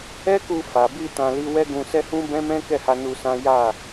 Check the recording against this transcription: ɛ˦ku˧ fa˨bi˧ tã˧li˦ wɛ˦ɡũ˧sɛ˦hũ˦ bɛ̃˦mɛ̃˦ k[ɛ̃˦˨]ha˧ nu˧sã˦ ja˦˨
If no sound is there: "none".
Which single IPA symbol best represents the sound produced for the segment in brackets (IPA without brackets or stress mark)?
ɛ˦˨